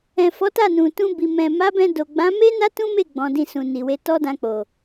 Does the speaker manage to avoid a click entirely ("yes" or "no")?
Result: yes